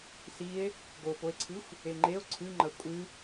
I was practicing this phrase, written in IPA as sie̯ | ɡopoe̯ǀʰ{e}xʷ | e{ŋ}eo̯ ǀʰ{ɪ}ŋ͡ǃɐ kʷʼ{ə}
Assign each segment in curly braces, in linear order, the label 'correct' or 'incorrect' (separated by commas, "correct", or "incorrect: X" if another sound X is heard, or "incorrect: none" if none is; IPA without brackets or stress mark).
incorrect: ɨ, incorrect: ŋ͡ǃ, incorrect: ɨ, incorrect: ɨ